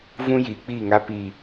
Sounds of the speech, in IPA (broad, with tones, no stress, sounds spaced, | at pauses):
v ũ˦ j iː˨ k͡p iː˦˨ ŋ a˦ p iː˨